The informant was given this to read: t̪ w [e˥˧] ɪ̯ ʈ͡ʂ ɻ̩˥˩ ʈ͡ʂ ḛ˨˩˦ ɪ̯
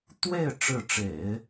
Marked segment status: correct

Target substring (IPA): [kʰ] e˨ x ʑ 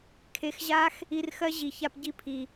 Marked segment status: correct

